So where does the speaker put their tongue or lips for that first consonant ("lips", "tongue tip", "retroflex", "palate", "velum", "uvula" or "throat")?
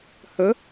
throat